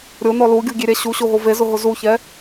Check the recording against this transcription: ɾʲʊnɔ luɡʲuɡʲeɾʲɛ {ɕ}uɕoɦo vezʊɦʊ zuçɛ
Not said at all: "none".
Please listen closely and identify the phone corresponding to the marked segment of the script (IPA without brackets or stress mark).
ɕ